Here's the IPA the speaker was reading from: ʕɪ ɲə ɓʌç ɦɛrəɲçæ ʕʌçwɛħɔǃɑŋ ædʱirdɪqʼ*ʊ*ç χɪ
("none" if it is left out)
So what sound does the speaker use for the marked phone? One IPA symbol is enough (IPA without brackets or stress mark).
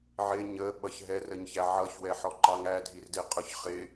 ʊ